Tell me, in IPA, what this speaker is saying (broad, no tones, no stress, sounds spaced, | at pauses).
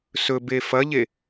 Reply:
s ɵ b e f ɐ ʎ e